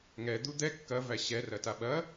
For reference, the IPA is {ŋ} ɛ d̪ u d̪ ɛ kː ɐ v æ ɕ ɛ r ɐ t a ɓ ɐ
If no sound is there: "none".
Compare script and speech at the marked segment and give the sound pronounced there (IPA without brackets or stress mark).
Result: ŋ